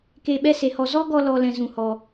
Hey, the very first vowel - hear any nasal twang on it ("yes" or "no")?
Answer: no